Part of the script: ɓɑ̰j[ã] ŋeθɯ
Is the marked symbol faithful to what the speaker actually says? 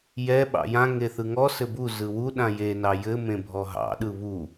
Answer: yes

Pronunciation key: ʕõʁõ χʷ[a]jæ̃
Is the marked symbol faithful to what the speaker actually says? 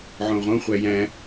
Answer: no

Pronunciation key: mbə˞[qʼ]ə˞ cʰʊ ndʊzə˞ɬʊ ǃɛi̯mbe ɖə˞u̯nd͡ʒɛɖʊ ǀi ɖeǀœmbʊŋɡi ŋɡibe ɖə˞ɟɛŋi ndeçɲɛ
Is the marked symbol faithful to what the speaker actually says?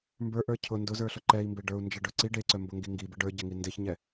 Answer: no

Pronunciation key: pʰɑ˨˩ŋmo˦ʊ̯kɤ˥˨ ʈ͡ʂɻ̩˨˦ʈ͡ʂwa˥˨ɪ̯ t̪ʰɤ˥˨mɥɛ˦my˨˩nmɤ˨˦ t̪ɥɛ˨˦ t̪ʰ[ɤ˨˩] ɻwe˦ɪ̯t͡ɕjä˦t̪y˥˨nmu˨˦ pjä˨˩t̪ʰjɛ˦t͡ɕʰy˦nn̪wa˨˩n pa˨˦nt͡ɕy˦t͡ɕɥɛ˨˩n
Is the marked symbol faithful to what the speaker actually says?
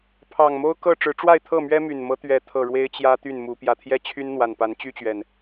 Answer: yes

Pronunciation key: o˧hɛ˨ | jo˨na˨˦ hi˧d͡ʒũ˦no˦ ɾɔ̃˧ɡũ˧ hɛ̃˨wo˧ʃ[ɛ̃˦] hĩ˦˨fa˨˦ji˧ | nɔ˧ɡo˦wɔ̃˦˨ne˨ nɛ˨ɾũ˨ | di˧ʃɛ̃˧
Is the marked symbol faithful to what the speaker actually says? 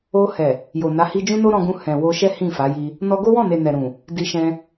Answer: no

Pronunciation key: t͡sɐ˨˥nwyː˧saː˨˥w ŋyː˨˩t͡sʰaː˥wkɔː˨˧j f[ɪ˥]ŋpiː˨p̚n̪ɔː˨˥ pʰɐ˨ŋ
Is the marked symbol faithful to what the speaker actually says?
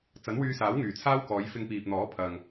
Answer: no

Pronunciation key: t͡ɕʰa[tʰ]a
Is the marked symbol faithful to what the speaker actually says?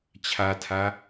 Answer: yes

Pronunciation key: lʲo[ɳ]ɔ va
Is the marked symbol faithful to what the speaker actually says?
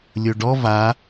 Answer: no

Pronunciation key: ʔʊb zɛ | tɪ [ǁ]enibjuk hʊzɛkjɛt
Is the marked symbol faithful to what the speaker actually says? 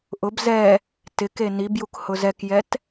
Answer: no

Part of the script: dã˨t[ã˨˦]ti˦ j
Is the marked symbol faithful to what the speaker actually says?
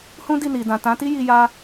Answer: yes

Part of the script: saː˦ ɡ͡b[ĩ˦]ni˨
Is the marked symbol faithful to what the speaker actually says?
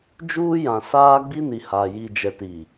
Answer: no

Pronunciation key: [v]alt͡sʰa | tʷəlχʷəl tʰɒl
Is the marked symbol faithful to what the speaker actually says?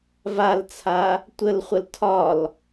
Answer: yes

